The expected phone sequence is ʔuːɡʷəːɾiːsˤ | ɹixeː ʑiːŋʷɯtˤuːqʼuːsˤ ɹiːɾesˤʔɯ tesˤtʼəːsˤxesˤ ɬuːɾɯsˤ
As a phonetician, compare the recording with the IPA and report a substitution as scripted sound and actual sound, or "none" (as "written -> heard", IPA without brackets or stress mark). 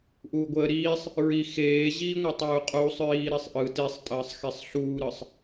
none